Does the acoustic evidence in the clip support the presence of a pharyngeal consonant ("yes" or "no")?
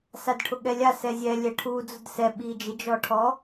no